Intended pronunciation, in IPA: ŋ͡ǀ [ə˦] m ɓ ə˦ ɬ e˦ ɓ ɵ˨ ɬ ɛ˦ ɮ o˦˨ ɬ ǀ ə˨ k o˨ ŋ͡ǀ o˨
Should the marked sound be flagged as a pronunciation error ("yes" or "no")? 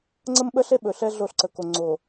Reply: no